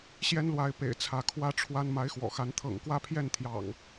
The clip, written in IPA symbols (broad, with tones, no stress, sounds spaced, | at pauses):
ɕ j ɛ˦ n l w a˨˦ ɪ̯ p ḛ˨˩ ɪ̯ t͡sʰ ä˨˦ kʰ w ä˦ ʈ͡ʂʰ w a˦ n m a˨˦ ɪ̯ x w ɔ̰˨˩ x a˨˦ n t̪ʰ ɤ̰˨˩ ŋ k w ä˥˨ pʰ j ɛ˥˨ n t̪ʰ j ɑ̰˨˩ ŋ